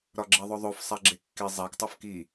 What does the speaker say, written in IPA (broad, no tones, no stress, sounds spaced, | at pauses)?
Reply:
ɾ ɒ ɡ͡ǁ e ðˤ o ðˤ o f sˤ æ ɡ͡ǁ e kː i zˤ æ k tˤ u f k i